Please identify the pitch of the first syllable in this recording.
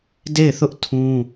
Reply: falling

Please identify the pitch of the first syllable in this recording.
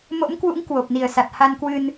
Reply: rising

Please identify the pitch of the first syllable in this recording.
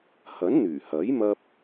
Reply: rising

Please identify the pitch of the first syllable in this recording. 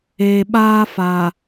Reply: low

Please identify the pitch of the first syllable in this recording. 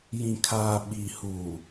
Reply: low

